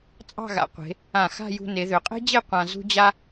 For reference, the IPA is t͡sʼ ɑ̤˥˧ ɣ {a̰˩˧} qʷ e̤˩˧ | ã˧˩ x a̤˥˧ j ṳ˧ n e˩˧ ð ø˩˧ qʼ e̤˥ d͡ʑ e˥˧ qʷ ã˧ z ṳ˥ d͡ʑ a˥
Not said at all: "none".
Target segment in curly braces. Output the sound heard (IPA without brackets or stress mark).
a̰˩˧